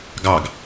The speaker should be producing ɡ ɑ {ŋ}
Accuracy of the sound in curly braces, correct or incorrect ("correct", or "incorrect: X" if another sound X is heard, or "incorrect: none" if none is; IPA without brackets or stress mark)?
incorrect: ɡ